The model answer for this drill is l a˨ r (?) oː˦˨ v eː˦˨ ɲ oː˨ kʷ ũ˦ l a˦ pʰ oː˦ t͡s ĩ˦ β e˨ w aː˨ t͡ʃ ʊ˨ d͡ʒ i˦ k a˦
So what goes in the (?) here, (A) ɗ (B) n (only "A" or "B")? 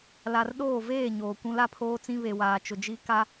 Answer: A